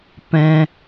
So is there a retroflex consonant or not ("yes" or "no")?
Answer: no